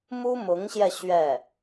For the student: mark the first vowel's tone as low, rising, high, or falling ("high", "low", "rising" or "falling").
high